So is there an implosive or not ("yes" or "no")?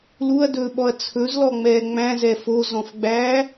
yes